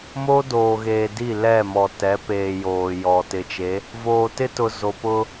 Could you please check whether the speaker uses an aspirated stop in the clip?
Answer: no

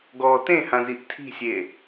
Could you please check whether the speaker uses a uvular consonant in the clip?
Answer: no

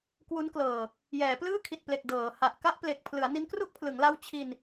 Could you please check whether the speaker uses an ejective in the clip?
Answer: no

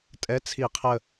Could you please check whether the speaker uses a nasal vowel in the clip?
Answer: no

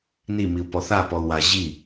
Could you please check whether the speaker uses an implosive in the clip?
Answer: no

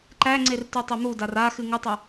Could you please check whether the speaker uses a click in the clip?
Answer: yes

